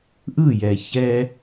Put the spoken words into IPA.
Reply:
ʔ ɯ˦˨ j ɛ˨ ç ɛ˦

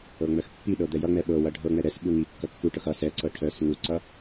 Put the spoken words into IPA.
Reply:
ɤ ŋ͡m œ x pː i ɗ ɤ d̪ ɛ j ʌ ŋ͡m ɛ ɓ ɤ w ʌ ɖʱ ɤ ŋ͡m ɛ ɾ ɛ s ɓ u ŋ i kː ʌ kː u ʈ ɤ x ʌ s ɛ ǀ ɤ ʈʰ œ s ŋ u ǀ ʌ

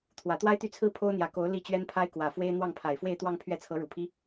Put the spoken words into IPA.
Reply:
t̪ʰ w ä˨˩ t̪ w a˥ ɪ̯ t̪ y˥˩ t͡sʰ ɹ̩˥ pʰ o˥ ʊ̯ n̪ j ä˨˩ k o˧˥ ʊ̯ l i˥˩ t͡ɕ ɥ ɛ˥ n pʰ a˥ ɪ̯ k w ä˨˩ f w e˥ ɪ̯ n̪ w ɑ˥˩ ŋ pʰ a˨˩ ɪ̯ f w e˥˧ ɪ̯ t̪ w ɑ˥˧ ŋ pʰ ɥ ɛ˥˩ t͡sʰ ɤ˧˥ ɻ u˨˩ pʰ i˥

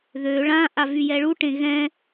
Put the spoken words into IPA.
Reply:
ð ø ɭ ã ʔ a v y j ɛ ɭ u ʈ ẽ ɣ ɛ̃

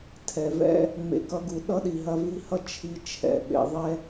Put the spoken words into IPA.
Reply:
tʰ ɛ˩ v ɛ̰˦ | ŋ͡m ḛ˨ k ʌ˦ ɡ u˨ ɗ ʌ˥ ɗ i˨ ɦ ɐ˦ v i˦ h ʌ˥ t͡ʃʰ i˨ t͡ʃʰ ɛ̰˨ ɓ ḛ˨ ðˤ ɛ˦

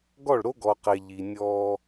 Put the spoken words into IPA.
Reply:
ɡ ɔ˦˨ ɭ ɾ o˦ ɡ ɔ˨ q e˨ ʎ i˨ nʲ ɔː˦

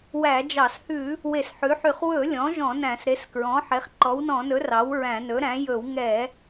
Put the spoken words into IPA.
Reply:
w æ˧˩˧ d͡ʒ ɑ˧˩˧ s h ʉ˧˩˧ | w e˧˩˧ s ħ ʉ˩˥ ħ y˧˩˧ χ w ɵ˧˩˧ lʲ ɔ̃˩˥ ʒ ɔ̃˧˩˧ n æ̃˧˩˧ s ɾ e˩˥ s k ɹ ɔ̃˩˥ ħ e˩˥ χ ǃ ɔ˩˥ w n ɔ̃˧˩˧ n ɵ˩˥ r ɑ˩˥ w ɹ æ̃˧˩˧ n ɵ˩˥ ɾ æ̃˩˥ j ɵ˧˩˧ w ŋ ɛ˧˩˧

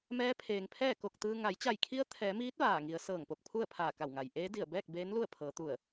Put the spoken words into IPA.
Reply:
m ɛː˧˥ pʰ eː˩ ŋ pʰ ɛː˥˨ k o˧˩ k̚ t̪ ɯː˧ ŋ a˩˧ j t͡ɕ a˧˩ j kʰ i˧˥ ə̯ t̪ʰ ɛː˩˧ m iː˧˥ t̚ ʋ aː˧˩ ŋ i˩˧ ə̯ s ɤː˧˩ ŋ p o˧˩ k̚ pʰ u˥˨ ə̯ pʰ aː˧˩ k a˧˩ w ŋ a˩ j ʔ eː˧˥ d i˧˩ ə̯ b ɛː˥˨ k̚ b eː˧˥ n l u˥˨ ə̯ pʰ ɤː˩˧ t̪ u˧˩ ə̯

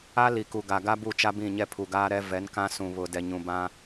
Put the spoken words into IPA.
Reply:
a˦ l i˨ k u˨ ɡ a˨ ɡ a˦ b u˦˨ t͡ʃ a˦ b ĩ˦˨ ɲ ɛ˦ pʰ u˨ ɡ aː˦ ɾ ɛ˦ v ɛ˨˦ n k ã˦ s ũ˨ β ʊ˨ d ɛ˨ ɲ ũ˨ b ã˦

